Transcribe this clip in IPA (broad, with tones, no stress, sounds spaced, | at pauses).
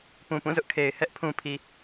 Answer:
p ũ˨ p ũ˦˨ z ʊ˦ ʔ kʰ e˨ ɪ̯ h ɛ˦ ʔ pʰ ũ˨ pʰ i˨